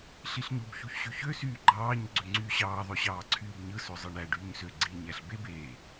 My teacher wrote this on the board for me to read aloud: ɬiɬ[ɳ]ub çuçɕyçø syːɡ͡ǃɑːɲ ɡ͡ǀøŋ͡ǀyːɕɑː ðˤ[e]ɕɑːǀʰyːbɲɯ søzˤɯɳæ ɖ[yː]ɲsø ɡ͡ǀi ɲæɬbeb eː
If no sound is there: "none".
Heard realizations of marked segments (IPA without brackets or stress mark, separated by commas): ɲ, ø, yː